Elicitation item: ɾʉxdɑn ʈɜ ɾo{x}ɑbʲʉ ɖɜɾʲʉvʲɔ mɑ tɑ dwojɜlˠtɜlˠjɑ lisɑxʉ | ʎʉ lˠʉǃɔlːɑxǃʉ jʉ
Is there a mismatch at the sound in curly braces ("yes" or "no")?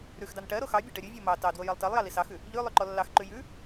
no